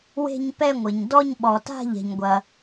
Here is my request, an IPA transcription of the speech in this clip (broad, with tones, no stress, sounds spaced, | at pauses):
w e̤˥˧ ɲ p ɛ˥˧ ŋʷ ɘ˩ ɲ d ɔ˥˧ ɲ ɓ ɔ˩ t a̤˥˧ ʎ ɛ̤˩ ɲ ɡʷ ɐ˩